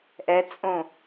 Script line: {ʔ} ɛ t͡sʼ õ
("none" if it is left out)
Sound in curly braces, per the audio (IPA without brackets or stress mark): ʔ